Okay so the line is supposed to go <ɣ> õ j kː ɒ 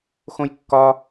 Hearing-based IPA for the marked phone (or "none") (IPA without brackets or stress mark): x